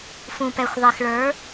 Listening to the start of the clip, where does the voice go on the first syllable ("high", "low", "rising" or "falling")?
low